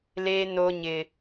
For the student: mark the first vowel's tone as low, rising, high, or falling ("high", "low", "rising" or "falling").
high